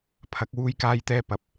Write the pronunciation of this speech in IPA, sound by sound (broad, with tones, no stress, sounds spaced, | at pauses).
pʰ ɐ˨˥ k̚ w uː˥ j k aː˥ j t̪ ɛː˥ p ɐ˨˥ p̚